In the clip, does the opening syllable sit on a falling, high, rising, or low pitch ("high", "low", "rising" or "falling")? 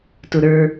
low